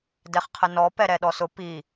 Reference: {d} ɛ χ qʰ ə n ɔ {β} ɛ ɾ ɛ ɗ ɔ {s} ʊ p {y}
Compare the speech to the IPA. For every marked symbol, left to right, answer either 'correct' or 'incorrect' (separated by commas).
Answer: correct, incorrect, correct, incorrect